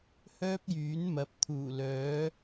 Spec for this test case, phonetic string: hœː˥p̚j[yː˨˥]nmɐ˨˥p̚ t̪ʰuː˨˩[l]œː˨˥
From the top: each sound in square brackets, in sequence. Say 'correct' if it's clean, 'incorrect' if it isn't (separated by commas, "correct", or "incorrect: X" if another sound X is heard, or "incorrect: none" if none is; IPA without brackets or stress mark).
correct, correct